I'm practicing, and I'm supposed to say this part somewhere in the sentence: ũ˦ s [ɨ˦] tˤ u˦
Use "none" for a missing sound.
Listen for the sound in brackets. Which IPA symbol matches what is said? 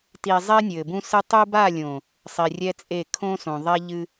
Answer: ɨ˦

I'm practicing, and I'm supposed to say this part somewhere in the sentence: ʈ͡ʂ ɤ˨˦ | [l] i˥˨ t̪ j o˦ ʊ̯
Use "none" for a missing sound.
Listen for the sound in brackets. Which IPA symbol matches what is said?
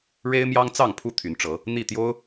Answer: n̪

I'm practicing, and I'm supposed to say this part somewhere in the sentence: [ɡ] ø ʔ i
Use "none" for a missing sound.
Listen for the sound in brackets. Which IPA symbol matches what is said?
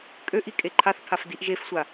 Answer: kʼ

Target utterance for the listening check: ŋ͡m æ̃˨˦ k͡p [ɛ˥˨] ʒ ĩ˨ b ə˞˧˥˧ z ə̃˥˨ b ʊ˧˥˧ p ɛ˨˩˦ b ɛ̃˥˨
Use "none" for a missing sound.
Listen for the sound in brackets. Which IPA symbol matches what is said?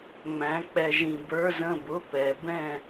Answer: ɛ˨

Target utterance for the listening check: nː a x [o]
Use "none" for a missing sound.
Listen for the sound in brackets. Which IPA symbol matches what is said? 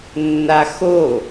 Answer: o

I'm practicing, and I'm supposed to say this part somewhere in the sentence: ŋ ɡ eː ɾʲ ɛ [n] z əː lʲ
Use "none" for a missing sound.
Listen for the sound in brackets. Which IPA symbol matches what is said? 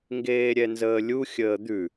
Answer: n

